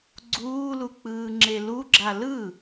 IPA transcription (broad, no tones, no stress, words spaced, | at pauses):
ɡ͡ǀuːluk͡pɯːŋ͡ǁe luɡ͡ǁa lɯ